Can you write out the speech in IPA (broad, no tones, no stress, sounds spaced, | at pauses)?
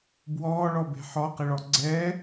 b w ɔː ɭ ɔ b e̤ ħ ɔ q ɪ ɭ ɔ ɡ͡ǀ ɛː